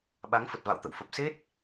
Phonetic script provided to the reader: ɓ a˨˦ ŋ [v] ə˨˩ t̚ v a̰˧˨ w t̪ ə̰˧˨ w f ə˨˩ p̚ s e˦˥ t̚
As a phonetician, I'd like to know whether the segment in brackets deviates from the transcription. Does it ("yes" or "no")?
yes